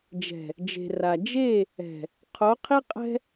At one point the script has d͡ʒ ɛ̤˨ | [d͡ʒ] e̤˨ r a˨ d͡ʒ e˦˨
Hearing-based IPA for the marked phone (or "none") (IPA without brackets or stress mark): d͡ʒ